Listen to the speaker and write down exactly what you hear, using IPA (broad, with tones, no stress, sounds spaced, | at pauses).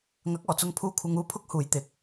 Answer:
ŋ ɐ˨˥ k̚ ɔː˨˩ t͡s ʊ˧ ŋ pʰ uː˧ kʷʰ ɐ˧ ŋ uː˥ pʰ ʊ˥ k̚ h uː˨ j t̪ ɪ˨˥ k̚